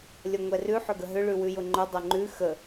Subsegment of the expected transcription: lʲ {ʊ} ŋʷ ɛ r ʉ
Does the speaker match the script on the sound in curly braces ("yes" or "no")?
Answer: no